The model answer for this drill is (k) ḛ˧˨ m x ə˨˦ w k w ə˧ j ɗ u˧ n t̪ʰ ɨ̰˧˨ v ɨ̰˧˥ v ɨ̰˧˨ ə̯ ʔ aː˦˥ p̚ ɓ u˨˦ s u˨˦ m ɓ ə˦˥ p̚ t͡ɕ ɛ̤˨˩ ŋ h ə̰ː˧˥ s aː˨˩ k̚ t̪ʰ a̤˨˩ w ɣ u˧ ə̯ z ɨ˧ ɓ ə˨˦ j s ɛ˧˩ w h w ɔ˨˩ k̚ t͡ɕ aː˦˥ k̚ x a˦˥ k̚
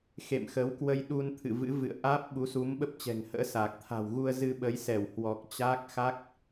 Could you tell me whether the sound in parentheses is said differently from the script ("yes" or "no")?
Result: yes